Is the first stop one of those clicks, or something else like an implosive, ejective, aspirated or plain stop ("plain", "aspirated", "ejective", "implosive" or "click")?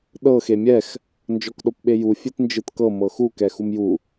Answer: implosive